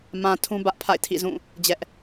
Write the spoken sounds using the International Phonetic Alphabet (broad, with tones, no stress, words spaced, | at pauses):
mã˨ tʰũ˦bä˦ʔpʰa̰˦˨ɪ̯ tʰḭ˦˨zũ˦˨ | d͡ʑɛ˦ʔ